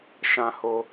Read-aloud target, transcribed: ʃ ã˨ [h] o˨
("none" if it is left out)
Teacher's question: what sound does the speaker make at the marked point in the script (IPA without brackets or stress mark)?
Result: h